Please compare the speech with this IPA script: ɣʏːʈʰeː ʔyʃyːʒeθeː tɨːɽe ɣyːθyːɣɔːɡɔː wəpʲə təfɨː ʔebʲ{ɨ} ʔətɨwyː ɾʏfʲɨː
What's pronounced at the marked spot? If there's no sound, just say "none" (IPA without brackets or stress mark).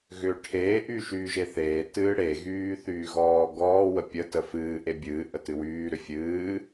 ɨː